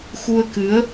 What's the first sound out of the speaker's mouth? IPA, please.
x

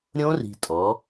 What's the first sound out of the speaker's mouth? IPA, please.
ɾʲ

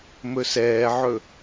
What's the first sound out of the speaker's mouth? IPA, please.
m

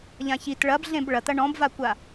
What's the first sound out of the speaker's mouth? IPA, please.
ʎ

